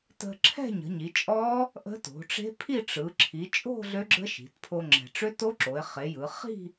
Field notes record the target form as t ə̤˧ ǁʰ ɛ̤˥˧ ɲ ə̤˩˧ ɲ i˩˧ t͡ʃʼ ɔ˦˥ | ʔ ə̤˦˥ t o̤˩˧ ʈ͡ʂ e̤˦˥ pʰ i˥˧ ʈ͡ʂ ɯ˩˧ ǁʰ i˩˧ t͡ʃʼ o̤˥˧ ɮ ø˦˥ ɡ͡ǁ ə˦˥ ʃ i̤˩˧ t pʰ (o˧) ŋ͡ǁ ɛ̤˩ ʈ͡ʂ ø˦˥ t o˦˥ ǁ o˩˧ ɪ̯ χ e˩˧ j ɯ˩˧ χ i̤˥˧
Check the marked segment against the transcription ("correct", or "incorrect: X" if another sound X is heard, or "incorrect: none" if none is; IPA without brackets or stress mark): correct